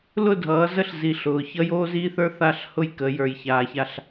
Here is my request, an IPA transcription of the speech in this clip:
l ʊ˦˨ dʱ ʌː˨˦ z ə˦ ɬ z i˨ ɬ ʊː˨ ç ʌ˦ j oː˦ z iː˦ θ ə˞˦ θ a˦˨ ɬ h ʊ˦ j k ə˨˦ j ə˞˨ j ç aː˨ ç a˦˨ ɬ

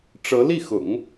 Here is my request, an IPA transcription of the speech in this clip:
ʈ͡ʂ ɤ˧˥ l i˥˩ x ʊ̰˨˩˦ ŋ

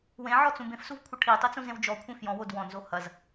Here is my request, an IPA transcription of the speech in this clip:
w ẽ ʕ ɔ t͡s ũ b ẽ f s u v kʷʰ ɐ ʈʰ i tˤ i t͡s ũ z ẽ w d͡ʒ ɔ kʷʰ ẽ f j ɔ̃ w o d w ɔ̃ n z o h ɐ z

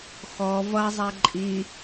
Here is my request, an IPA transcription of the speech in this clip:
x ɔ v ʌ zˤ ɛ ǃʼ i

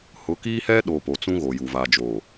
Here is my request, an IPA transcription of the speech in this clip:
h ʊ˨˦ k iː˦ h ɛ˦ ɗ o˨ p o˨ t͡s ũ˦ ɣ o˨ j u˨ v aː˨ d͡ʒ o˨

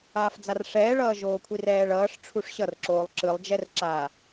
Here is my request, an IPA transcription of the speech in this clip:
aː f d͡z a r ʂ ɛː ɭ ʌː ʒ oː kʷʰ i r ɛː ɭ ʌː ʂ ʈ͡ʂʰ u ʂ ɕ ʌ r ǁ oː lˠ ǁ ɯ lˠ d͡ʒ ɛ r ǁ aː

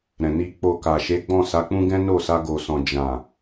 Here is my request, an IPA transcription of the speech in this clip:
ɾ ɛ̃˨ n i˨ k͡p o˨ k a˨ ʃ e˨˦ ɡ͡b ɔ̃˦˨ s a˨˦ k͡p ũ˦ ɡ ɛ̃˦ n o˦˨ s a˧ ɡ o˨ s ɔ̃˨ d͡ʒ ã˨

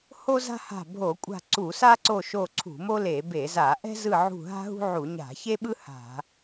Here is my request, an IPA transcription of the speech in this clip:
h o˥ z a̤˥ h a̤˦˨ bʱ o˧˩˧ kʷʼ a̤˦˨ ǀ u˧˩˧ s a˥ ǀ o˦˨ ʃ o˦˨ ǀʰ ṳ˧˩˧ m o˥ l e˧˩˧ b e˧˩˧ z a˧˩˧ ʔ ɛ̤˥ z ɯ˦˨ ʕ ṳ˦˨ ɦ a̤˥ ɦ ṳ˥ ʕ u˧˩˧ ɲ a̤˧˩˧ ç e˥ ɓ ɯ˥ h a̤˧˩˧

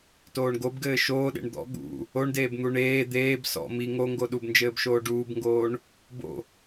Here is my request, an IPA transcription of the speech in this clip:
t oː ɳ ɡ o b ɡ ɘː ʃ oː ɗ ḛ ɳ d̪ ɔ̰ ɠ ṵ | o ɳ d eː b n̪ u ɳ eː d̪ eː b s ɔ̰ m i ŋ o ŋ ɡ o ɗ u b n d͡ʒ ɘː b ʃ oː ɖ uː b ŋ ɡ oː ɳ | b o̰

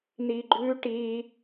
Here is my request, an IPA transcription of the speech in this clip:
n i ɡ͡ǃ ʉ ʈ i

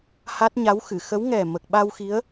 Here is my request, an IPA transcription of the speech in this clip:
h a˦˥ t̚ ɲ a˧˥ w x ɨ˨˩˨ x ə˧˥ w ŋ ɛ˨˩ m ə˨˩ k̚ ɓ a˧ w x i˧˥ ə̯

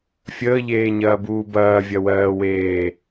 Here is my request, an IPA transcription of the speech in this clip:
fʲ əː ʎ eː ɲ ɐː b uː b ɐː vʲ ɐ w ɜː w eː

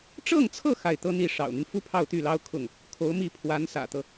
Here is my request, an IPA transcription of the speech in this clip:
ʈ͡ʂ ɤ˥˧ ŋ t͡sʰ ɤ˥˧ x a˥˩ ɪ̯ t̪ ɤ˥ n̪ i˥˩ ʂ ɑ̰˨˩ ʊ̯ n̪ y˦ n f u˥ pʰ ɑ˥˧ ʊ̯ t̪ y˥˩ l ɑ˥ ʊ̯ kʰ ʊ˥˩ ŋ | kʰ o˧˥ ʊ̯ m i˥˩ pʰ w a˧˥ n s ä̰˨˩ t̪ ɤ˦

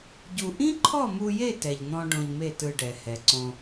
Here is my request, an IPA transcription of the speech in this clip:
ɟ u˧ ʔ ĩ˦ ǃʰ ɔ˦˨ m u˧ j e˦˨ t ɛ˧ ʎ n̪ ɔ̃˦ ɖ õ˧ ʎ m e˦˨ t ɯ˧ ɖ ɛ˨ h ɛ˨ ǀ õ˧

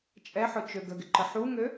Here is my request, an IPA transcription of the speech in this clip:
t͡ʃʼ ɛ ħ ʊ t͡ʃ ø ɡ ə ɡ ɪ ǃ ə ħ u ŋ ø

